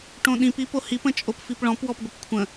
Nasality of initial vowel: nasal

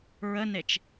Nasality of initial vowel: oral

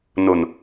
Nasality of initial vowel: oral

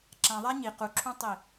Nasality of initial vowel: nasal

